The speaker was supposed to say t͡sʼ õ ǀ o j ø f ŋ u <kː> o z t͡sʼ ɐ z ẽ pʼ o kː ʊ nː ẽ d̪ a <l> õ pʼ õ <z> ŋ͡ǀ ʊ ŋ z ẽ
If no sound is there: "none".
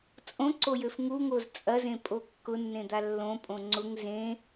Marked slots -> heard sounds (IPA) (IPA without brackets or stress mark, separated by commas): ŋ, lː, none